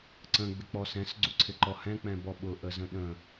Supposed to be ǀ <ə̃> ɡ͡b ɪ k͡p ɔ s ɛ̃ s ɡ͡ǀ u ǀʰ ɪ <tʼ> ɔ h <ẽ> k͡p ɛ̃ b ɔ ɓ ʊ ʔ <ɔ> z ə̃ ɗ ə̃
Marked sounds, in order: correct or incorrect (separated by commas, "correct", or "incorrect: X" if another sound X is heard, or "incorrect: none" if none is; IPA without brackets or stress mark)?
correct, incorrect: ǃ, incorrect: ɛ̃, incorrect: ə